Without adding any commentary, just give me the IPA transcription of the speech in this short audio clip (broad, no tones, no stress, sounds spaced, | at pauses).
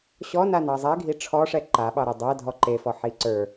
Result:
ɕ ɔ n a n ɑ zˤ ɛ ɡʱ i ʈ͡ʂʰ ɔ ʂ ɛ ǃ a ɓ ɑ ɾ e dˤ æ dʱ ɔ ǃ e f ɔ ħ i ǀ ə˞